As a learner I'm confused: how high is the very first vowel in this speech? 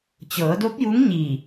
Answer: mid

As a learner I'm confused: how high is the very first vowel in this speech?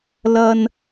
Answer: low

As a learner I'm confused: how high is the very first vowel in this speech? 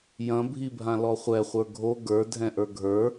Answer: low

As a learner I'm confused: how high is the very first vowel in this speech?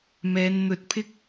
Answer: mid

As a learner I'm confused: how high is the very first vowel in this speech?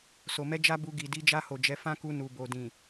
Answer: mid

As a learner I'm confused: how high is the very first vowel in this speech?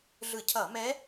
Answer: high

